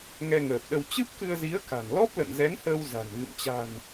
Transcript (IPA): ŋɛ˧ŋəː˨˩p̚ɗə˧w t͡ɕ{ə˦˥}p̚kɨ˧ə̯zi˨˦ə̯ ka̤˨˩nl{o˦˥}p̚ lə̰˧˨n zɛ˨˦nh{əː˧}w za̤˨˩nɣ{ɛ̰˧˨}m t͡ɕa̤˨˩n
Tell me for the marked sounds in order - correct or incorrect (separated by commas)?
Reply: incorrect, incorrect, correct, incorrect